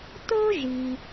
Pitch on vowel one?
high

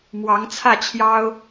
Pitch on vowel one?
rising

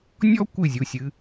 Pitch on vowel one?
high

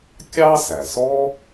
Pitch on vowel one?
high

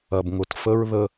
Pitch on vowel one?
low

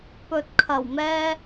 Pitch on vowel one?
low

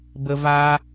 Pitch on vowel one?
high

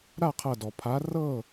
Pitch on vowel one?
falling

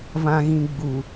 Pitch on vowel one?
low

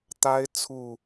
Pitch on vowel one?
high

